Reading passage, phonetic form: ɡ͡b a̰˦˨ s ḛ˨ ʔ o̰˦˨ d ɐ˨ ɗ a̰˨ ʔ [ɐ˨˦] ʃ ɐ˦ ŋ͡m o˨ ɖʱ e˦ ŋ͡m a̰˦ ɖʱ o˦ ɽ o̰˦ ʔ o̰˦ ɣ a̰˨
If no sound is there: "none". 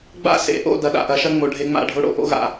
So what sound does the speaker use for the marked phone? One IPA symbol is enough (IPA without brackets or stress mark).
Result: ɐ˨˦